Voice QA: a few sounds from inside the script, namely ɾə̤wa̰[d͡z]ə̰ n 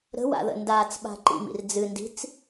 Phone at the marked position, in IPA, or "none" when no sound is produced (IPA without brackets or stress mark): ð